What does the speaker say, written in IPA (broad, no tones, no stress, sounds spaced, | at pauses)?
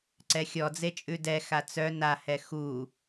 ǀ ɛ xʲ ɔ d͡z e t͡ʃʼ ʉ d ɛ x a t͡s œ n a h ɛ x u